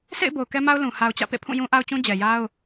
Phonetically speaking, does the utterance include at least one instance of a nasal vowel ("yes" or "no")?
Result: yes